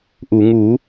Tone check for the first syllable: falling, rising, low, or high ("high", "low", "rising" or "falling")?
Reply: low